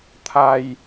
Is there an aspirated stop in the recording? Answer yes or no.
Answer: yes